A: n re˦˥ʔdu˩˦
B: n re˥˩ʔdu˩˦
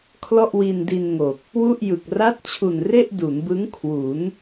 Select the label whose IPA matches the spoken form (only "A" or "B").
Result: B